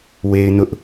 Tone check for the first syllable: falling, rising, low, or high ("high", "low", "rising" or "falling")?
high